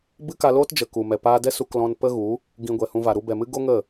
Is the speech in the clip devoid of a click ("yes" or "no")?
yes